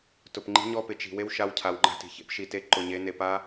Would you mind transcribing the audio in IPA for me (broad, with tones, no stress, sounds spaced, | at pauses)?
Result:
t ʊ˨ p ŋ͡ǃ i̤˦ ɲ ɔ˦ p ɪ˨ t͡ʃ i̤˨ w e˦ w ʃ a˦ w cʰ a˨ w ŋ͡ǃ a̤˦ t i̤˨ ç ḛ˦ p ʃ i˨ t e˦˨ ǃ ʊ˨ ɲ e˨˦ n e˨ p a˦